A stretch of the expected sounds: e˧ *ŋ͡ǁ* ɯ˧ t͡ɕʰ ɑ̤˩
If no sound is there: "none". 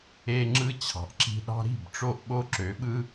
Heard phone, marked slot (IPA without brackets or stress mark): ŋ͡ǁ